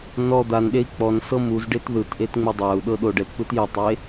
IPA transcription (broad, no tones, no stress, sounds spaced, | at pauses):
n ɔ d̪ a n ɗ e i̯ k͡p ɔ n s ɤ m u z ɖ e t ð ɯ t ʔ e t ŋ͡m u dˤ a u̯ ɗ ɤ ɗ o ɖ ɛ t p ɯ t j ɛ tˤ e